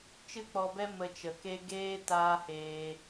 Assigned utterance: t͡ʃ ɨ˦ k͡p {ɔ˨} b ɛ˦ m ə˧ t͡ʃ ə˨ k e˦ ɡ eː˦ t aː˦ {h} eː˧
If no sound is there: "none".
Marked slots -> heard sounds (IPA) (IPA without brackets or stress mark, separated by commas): ɔ˧, h